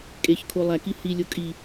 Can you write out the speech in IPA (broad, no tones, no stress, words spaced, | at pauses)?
kʼeç kʰolˠæki hilʲo kʼi